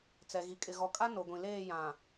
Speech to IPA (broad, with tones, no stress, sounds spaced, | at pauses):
t͡s ɛ˨ ɣ i˨ kʼ ɪ˨ ɣ ɔ˨ kʼ a˦ n o˨ ɡʷ ĩ˨ l eː˦˨ j ã˨